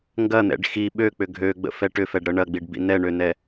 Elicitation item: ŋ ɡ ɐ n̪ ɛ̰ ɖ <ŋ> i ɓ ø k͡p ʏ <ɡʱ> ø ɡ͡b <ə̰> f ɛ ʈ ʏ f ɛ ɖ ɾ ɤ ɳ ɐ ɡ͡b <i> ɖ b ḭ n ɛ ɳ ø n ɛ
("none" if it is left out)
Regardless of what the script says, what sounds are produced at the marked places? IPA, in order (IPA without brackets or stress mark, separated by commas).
x, ɡʱ, ə̰, i